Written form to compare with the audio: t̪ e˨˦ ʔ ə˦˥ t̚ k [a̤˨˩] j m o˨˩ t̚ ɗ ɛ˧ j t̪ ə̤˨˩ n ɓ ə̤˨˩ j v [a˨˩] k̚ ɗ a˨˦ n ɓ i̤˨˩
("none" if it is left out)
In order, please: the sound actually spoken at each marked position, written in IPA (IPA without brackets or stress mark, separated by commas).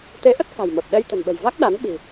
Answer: a̤˨˩, a˦˥